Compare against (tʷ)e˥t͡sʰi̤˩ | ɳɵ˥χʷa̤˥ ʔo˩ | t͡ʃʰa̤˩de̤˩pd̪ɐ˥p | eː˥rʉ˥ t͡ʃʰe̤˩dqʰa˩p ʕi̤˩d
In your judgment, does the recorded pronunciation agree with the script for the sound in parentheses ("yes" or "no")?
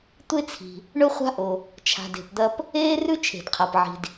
yes